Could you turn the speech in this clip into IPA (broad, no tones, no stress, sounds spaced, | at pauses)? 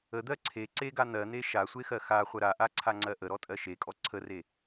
ə d̪ ɜ ǀʰ e ǀ e ɡ a n̪ ɜ n̪ e ʃ a sʷ e x ɜ x a χʷ ə ɾ a ʔ a ǀʰ a ŋ͡ǀ ɜ ʔ ə ɾ ɔ tʼ ɜ ʃ e kʼ ɔ ǀʰ ə r e